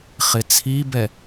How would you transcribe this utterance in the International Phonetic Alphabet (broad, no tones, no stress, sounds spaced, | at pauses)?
χ ɪ t͡sʰ i b ɛ